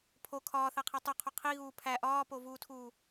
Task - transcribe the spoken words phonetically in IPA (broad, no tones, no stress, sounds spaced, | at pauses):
pʰ o kʰ ɒː θ æ qʰ e tˤ u qʰ o qʰ i ɣ uː pʰ æ ʔ ɒː p o v uː tʰ uː